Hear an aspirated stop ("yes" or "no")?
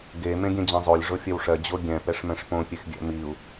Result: no